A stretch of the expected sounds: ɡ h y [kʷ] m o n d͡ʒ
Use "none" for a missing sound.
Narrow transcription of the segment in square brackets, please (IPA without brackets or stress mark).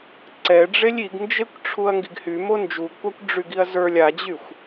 none